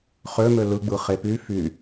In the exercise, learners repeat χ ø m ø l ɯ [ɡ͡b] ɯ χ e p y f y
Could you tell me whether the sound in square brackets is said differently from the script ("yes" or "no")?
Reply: no